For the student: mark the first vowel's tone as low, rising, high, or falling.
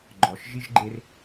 low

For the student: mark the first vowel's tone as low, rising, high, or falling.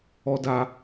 low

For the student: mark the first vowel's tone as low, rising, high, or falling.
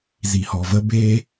low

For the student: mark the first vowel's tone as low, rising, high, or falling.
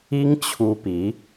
high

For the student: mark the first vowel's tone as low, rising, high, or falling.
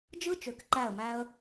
high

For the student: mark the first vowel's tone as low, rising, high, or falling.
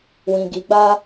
low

